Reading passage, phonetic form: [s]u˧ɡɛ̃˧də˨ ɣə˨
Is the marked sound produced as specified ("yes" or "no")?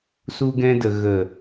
yes